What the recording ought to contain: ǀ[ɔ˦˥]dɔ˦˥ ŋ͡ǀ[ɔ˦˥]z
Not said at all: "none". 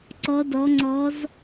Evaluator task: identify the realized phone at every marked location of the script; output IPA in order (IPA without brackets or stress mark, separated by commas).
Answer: ɔ˦˥, ɔ˦˥